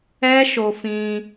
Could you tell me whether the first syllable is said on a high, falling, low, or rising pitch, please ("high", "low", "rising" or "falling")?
high